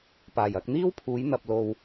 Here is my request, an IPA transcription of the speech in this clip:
paː˨˩jɐ˧k̚n̪iː˥w pʰuː˨˥jn̪ɐ˨p̚lo˨w

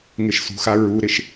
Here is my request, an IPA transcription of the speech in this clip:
ŋɪʃsṳxa ɹuɾɪʃ

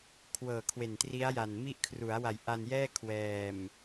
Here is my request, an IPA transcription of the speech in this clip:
kʰwɤː˨˩kʰwe˨˩ntri˦˥a̯ja˨˩n mi˦˥ʔkʰru˩˦a̯wa˨˩j ʔa˧n jɛː˥˩kʰwɛː˨˩m

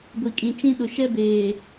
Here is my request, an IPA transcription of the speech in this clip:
ɡʷi˨kʼĩ˨t͡ʃĩ˦ ɗʊ˨ʃɛ˦beː˨

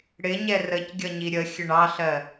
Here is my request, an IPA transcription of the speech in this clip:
ɽɪɲɛ rəcɡʲʌɲi ɾʲə xʲəɳɑɬɜ

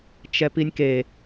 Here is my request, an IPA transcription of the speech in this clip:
t͡ʃɛpinʲke

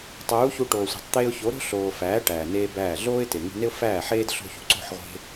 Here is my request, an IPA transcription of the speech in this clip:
tˤuː˨˦çu˧ʈoː˨sʷe̤˨tˤ t̪eː˧ʊ̯ço˨˦ ɾo̤˦ɬoː˨fæː˨˦ ʈæː˨neː˦bæː˦˨ ɮoː˦ɪ̯te˨ŋṳ˧ ne˦ʊ̯fæː˦˨ħeː˦d ɬo̤˧çṳ˨ǀo̤˦˨ħʁʷe̤˧

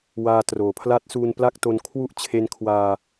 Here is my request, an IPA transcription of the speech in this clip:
waː˧troː˩˦pʰla˦˥t̚ suː˧npla˥˩k̚to˧n kʰwu˥˩ʔt͡ɕʰe˦˥nkʰwaː˧

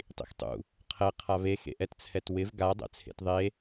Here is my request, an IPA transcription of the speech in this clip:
tˤḭxtˤṵ | qʰɛ qʰaβe xḛʔɛtt͡sʰɛtwɪv ɡa dˤɛ̰t͡sʰḛtðˤe

